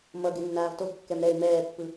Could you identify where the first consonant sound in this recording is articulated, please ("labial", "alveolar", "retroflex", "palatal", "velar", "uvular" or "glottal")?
labial